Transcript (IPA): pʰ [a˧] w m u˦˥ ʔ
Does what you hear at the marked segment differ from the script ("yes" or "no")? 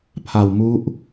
no